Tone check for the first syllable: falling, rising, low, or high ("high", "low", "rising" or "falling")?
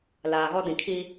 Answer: low